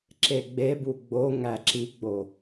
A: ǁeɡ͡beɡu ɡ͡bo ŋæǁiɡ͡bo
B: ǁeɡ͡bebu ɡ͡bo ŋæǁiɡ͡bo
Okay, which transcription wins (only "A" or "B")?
B